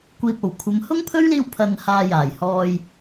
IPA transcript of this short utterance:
kʷ iː˨ p̚ o˨˩ w kʷʰ ɐ˨˧ m h ʊ˥ ŋ pʰ ɵ˥ ɥ l iː˧ w pʰ ɐ˨ n h aː˨ j aː˨˩ j h ɔː˨ j

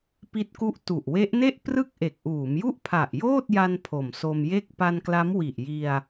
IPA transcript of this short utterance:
p i˦˥ t̚ k u˦˥ ʔ t u˨˩ ʔ w e˦˥ ʔ n e˥˩ ʔ p r ɯ˥˩ k̚ ʔ e˨˩ k̚ ʔ uː˩˦ m j u˥˩ ʔ pʰ a˨˩ ʔ j oː˥˩ t̚ j a˧ n pʰ o˨˩ m s o˧ m j e˥˩ k̚ p a˧ n k l a˦˥ m w i˨˩ ʔ j i˧ a̯

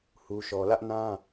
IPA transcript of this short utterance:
h u˦ ʃ ɔ˦ l ä˦ ʔ n ã˦

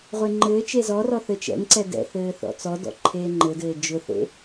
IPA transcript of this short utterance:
ʁʷ e ŋ͡ǃ ɘː t͡ʃ e z ɔ r ɔ θ ɘː t͡ʃ ɛ̰ ŋ ǀ ɛ d ɛ̰ θ ɘː θ ɔ̰ t͡s ɔ d ɔ̰ ǃʰ eː ŋ͡ǃ ɘ d ɘː d͡ʒ ʊ θ ḛ

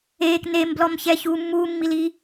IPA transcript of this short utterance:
eː k n e m b l ɔ m ç ɛː ç uː mː uː mː i l i

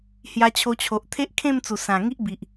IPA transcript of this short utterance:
h j a˧ t͡ɕʰ o˧ t͡ɕʰ o˨ ʔ t̪ʰ e˦ ʔ kʰ ẽ˥˧ m t͡s u˨˩ s ã˨˩ ŋ i˦ ʔ b i˨ ʔ

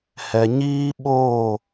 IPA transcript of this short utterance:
h ɛ˨ ɲ iː˦ ɓ oː˦˨

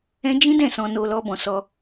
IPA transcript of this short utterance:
ɛ̃˦ d͡ʒ ĩ˦ d ɛ̃˦˨ s ɔ̃˧ n o˧ l ɔ˦ b ɔ̃˧ s ɔ˦

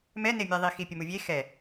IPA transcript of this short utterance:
m ɛ n e mʲ ɛ ðˤ i x i pʲ ə m u vʲ e x ɛ

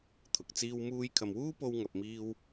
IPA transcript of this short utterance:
t̪ʰ ʊ˨˥ k̚ t͡s iː˥ w m uː˧ j kʰ ɐ˨ m w uː˥ p o˧ w ŋ ɐ˨ p̚ m iː˧ w

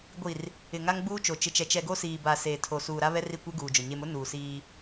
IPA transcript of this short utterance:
ɡʷ i˨ r | ɪ˨ ŋ a˦ ŋ ɡ͡b uː˦ t͡ʃ o˨ t͡ʃ ɪ˨ t͡ʃ ɛ˨ t͡ʃ ɛ˨ ɡ o˦ s iː˨ b a˨ s eː˨ tʰ o˨ s uː˨ ɾ a˦ β ɛ˦ r i˦˨ kʷ e˦ ɡ uː˨ d͡ʒ ʊ˨ ɲ e˦ m ʊ˦ n uː˨ s iː˦

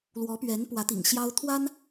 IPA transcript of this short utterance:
l w ɔ˧˥ p ɥ ɛ˧˥ n p w ä˧˥ t̪ ḭ˨˩ ŋ ɕ j ɑ˥ ʊ̯ t̪ʰ w a˥ n

